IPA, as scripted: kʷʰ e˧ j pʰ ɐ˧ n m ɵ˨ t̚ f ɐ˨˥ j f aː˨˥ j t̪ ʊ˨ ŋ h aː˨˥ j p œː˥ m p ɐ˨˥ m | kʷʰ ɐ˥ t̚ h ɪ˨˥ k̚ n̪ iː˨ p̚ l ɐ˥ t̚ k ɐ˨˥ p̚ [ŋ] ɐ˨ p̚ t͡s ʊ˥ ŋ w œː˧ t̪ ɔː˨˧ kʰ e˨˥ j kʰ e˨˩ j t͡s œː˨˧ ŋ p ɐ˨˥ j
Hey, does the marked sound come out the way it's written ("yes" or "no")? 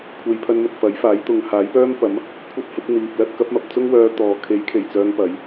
no